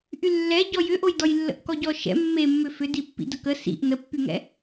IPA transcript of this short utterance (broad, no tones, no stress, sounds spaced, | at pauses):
ʔ y lː ɛ ɟ ɔ j ʏ ʔ o j d ɔ j lː ə̰ ʔ k ɔ ɟ ɔ ʃ ɛ̰ mː e mː ʏ f ʏ d i pː ḭ d ə k ə s ḭ ʔ n ə pː y ŋ ɛ̰